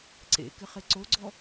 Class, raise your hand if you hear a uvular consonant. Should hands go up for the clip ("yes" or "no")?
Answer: yes